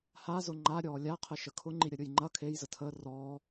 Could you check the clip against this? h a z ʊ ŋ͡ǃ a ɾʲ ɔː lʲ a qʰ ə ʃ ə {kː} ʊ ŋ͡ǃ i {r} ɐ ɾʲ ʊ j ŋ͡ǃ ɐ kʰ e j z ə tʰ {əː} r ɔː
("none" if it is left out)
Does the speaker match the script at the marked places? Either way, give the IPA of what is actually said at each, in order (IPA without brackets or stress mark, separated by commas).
kʰ, ɾʲ, əː